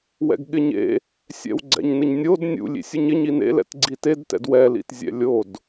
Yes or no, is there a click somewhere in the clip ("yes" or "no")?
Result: yes